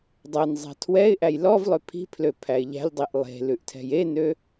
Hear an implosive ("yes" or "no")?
no